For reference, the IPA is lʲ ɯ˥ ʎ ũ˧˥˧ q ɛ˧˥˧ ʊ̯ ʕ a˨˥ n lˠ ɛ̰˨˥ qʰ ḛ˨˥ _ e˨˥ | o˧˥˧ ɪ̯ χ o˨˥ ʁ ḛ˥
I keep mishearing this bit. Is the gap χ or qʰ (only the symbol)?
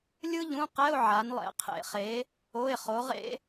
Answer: χ